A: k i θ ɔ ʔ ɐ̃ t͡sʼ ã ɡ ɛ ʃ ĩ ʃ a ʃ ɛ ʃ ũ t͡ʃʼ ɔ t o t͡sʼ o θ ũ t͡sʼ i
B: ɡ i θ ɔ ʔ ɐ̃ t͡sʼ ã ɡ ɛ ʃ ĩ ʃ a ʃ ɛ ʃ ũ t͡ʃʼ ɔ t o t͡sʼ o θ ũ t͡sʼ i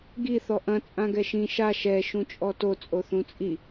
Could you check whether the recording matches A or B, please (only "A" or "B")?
B